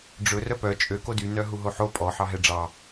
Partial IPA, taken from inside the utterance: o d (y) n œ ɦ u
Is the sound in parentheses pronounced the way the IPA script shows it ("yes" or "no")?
yes